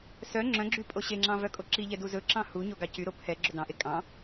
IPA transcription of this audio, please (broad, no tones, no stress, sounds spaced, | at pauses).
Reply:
s œ ŋ͡ǁ œ̃ ɡ͡ǁ y pʼ o ɕ e ŋ͡ǁ ɑ̃ v œ kʼ o ǁ i ʎ ɛ d u z ɵ ǁ ɑ̃ h u ɲ o ɡ ɑ c y ɾ o pʰ ɛ ɡ͡ǁ ɵ d ɑ̃ ʔ e kʼ ɑ̃